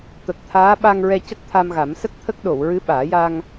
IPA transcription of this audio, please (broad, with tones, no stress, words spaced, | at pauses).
t̪ə˨˩k̚t̪ʰaː˧˥ɓa˧ŋɹɛ˧ cə˦˥k̚t̪ʰa˧mɣa˨˩˦m sə˦˥k̚t̪ʰə˦˥k̚ɗo˨˩˨w ɹɨ˧˥ɓaː˨˩˦ ja˧ŋ